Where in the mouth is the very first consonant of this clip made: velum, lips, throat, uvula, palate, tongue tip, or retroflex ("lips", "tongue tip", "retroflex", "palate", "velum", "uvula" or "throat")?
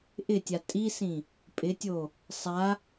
throat